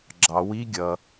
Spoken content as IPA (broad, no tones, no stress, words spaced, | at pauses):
ɡ͡ǁɑ wi ɡʲʌ